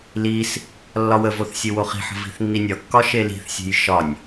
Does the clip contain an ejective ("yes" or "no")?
no